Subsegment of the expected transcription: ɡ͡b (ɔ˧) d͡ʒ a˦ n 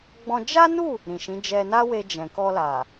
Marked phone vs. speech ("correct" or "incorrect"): incorrect